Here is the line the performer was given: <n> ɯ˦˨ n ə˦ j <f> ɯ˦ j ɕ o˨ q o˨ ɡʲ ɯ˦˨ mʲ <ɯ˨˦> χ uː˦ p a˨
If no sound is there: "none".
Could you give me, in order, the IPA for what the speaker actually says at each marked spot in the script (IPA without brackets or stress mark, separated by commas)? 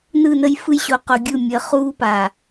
n, f, ə˨˦